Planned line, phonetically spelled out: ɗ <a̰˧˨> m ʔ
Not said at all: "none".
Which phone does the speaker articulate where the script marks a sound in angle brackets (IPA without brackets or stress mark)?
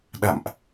a̰˧˨